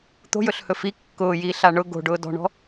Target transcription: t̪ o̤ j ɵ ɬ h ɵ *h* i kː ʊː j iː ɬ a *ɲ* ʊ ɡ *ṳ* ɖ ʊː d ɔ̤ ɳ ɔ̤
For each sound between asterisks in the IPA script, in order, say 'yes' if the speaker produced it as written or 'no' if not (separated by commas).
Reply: no, no, no